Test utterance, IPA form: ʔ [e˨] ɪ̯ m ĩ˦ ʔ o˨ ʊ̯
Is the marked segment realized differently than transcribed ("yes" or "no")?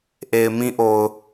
no